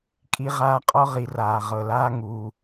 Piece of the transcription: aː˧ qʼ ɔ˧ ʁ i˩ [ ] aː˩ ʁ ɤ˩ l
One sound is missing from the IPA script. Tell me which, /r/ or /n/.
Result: r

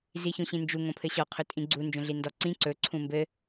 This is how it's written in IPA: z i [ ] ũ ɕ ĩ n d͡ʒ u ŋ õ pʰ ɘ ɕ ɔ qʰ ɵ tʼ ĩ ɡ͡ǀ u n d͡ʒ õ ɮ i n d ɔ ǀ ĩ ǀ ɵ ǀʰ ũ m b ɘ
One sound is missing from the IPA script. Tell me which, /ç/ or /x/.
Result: ç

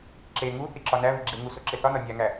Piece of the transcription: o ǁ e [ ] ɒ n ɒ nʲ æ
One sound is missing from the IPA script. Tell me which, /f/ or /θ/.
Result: θ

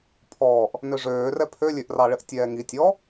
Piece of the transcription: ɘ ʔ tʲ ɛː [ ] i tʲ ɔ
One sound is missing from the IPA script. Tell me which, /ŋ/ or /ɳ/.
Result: ŋ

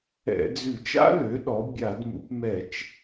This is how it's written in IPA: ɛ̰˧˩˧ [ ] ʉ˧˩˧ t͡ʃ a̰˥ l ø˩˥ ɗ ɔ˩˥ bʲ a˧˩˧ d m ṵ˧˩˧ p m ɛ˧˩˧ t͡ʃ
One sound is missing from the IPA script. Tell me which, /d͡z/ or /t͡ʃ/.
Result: d͡z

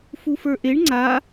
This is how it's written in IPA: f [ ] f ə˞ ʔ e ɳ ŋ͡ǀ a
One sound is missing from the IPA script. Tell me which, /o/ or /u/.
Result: u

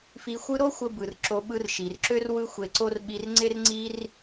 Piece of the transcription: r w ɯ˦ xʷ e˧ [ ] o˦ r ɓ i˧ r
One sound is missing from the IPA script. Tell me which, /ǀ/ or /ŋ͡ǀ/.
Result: ǀ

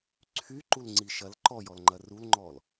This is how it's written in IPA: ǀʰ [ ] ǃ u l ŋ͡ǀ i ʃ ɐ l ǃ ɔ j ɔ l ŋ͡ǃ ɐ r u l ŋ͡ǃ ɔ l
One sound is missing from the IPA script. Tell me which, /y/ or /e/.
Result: y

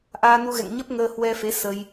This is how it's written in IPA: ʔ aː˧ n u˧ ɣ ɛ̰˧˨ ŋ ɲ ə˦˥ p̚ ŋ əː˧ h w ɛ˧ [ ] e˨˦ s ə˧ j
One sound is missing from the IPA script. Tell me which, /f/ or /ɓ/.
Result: f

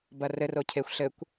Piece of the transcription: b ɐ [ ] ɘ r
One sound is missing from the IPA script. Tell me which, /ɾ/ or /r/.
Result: r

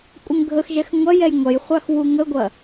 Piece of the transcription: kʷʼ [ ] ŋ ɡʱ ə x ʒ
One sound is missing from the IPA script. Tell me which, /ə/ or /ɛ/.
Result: ə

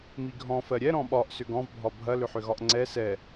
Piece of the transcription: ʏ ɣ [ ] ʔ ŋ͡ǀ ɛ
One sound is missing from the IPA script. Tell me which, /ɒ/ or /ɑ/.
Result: ɒ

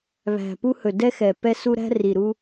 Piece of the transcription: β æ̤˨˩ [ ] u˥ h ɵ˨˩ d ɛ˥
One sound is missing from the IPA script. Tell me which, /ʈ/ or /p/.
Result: p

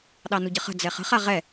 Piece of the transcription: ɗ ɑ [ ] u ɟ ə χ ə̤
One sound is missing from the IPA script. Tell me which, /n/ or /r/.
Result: n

